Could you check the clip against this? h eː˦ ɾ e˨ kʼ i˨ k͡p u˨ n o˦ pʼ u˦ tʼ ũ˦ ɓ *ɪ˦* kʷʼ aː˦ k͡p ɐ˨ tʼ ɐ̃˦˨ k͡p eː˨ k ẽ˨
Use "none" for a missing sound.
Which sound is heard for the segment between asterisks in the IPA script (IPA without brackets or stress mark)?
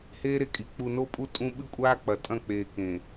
ɨ˦